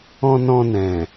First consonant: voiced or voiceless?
voiced